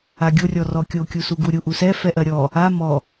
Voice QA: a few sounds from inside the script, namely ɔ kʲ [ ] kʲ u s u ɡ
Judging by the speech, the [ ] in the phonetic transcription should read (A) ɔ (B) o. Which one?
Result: B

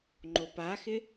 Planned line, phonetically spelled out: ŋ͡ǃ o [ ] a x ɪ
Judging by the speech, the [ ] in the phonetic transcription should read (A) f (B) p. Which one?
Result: B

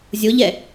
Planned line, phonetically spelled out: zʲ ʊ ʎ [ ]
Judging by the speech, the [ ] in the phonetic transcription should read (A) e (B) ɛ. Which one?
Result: B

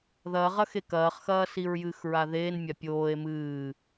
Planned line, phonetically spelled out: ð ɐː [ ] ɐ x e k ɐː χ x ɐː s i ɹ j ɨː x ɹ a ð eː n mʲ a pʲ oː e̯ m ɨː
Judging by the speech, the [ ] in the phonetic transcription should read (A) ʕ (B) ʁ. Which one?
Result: B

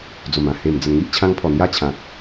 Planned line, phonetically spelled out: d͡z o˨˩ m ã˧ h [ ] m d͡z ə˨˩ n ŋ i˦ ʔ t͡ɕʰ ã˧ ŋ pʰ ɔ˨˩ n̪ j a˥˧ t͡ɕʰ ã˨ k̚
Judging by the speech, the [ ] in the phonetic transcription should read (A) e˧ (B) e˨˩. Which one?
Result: B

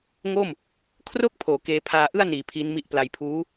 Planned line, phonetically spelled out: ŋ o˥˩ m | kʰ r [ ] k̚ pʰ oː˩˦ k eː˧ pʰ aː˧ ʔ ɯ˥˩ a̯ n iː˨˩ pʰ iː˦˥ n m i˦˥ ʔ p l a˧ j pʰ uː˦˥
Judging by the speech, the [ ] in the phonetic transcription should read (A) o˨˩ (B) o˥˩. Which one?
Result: B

